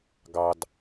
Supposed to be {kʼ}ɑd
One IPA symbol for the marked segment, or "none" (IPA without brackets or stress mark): ɡ